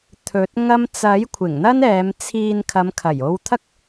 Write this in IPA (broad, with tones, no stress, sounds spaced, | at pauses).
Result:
t̪ʰ ɵ˨˥ t̚ ŋ ɐ˥ m t͡s ɐ˨˥ j kʷʰ ɪ˨˩ ŋ n̪ ɐ˥ n ɛː˨˧ m t͡sʰ iː˧ n kʰ ɐ˨˧ m kʰ ɐ˨˩ j o˧ w t̪ʰ ɐ˥ k̚